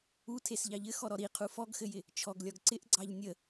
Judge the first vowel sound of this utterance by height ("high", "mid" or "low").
high